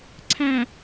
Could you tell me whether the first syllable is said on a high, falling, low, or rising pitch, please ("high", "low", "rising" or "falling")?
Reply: low